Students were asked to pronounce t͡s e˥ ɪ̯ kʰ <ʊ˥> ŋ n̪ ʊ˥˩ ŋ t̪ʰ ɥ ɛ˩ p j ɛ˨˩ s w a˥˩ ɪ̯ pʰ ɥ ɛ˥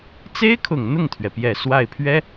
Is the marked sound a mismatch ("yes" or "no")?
yes